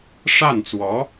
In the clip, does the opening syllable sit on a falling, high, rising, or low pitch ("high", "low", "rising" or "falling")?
falling